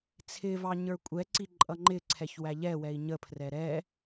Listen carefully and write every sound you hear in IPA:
t͡sʰ ɪ v ɑ ɲ ə˞ kʷʼ ɛ ǀ i ǃʼ ʌ ŋ͡ǃ ɪ ǀʰ ɛ ç w æ ʎ ɛ w ɛ i̯ ɲ ə pʰ r ɛ ɾ ɛ

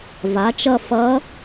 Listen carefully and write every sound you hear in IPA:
v a˩˥ t͡ʃ ʌ˦˨ f ʌ˧˥

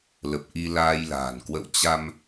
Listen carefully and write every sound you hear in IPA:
l ə˨˩ p̚ ʔ i˧ l aː˧ j l a̤ː˨˩ n k w ə̰˧˨ w t͡ɕ a˧ m

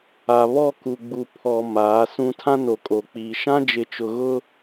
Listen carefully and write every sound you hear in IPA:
a˨ β ɔ˦˨ k u˨ ɡ͡b u˨ pʰ ɔ˨ m aː˨˦ s ũ˦ tʰ ã˦ n o˨ kʼ o˨ k͡p iː˨ ʃ ã˦ d͡ʒ ɪ˨˦ t͡ʃ ʊ˨ ɣ ʊ˦

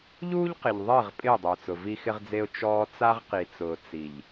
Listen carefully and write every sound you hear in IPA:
ʎ uː˦ ʎ q ɪ˨ ʎ ðˤ ɪː˦˨ ʁ pʼ ɪː˦˨ dˤ ʊː˨ t͡s ʊ˨ v i˦ x ɪ˦ ʁ d͡z e˦ ʊ̯ t͡ʃ ɔː˦ t͡s a˦ ʁ q i˨ t͡s ʊː˨ t͡s i˨ ʎ

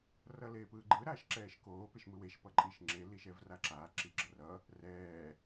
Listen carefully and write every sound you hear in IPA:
r ʌ l eː p ɯː ɡ͡ǃ ɯ ɾ aː ʃ ǁ ɛː ʃ k oː p e ʃ m ɯ w e ʃ p ʌ ǃʼ i ʃ ŋ͡ǁ e l i ʃ ɛ v r a ǁ aː ǁ i ɡ͡ǁ ʌ r ʌ | r ɛː

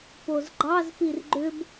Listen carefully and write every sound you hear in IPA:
p o z ɡ͡ǃ ɑ z p i r ɡ͡ǃ ʏ b

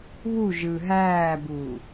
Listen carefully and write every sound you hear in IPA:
β u ʒ ɯ ɦ æː b uː

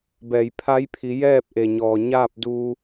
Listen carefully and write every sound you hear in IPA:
b ɛː˩ j pʰ a˧˥ j pʰ i˩˧ j ɛː˥˨ p̚ ʔ e˩ ɲ ɔː˩ ɲ aː˥˨ p̚ d u˧

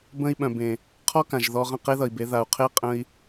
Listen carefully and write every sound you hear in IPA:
b ə̃˧ i̯ ɓ œ̃˨ b ẽ˨ | qʰ ɔ˦ k ã˨ ʒ ð ɔ˧ ʁ ə̃˦˨ q e˦ ð ʌ˨ i̯ b e˨˦ ð a˨ u̯ qʰ e˦ qʼ ə̃˦ i̯

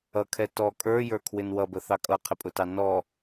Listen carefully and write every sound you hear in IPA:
ʌ kʰ ɛ t ɔ kʼ ə˞ j ə˞ kʰ w ɪ n w ʌ b ə θ ɑ kʼ ʌ qʰ ɪ pʼ ʊ t ɑ n ɔ

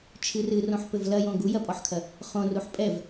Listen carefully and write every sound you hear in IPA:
t͡ʃʰ ɨ r ɨ r õ ħ p ɘ v l ɐ j õ ɡ u j ɐ pʼ ɔ ħ kʰ ɐ | χ õ r u ħ pʼ ɛ v

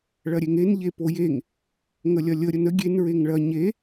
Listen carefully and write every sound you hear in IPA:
ɭ ɐ ɾʲ e ŋ e n ʎ e p o j e ŋ | ŋ ə lʲ ɐ lʲ ə ɾʲ ə n ə ɡʲ e n ɹ e ŋ ɭ ɐ ɲ e

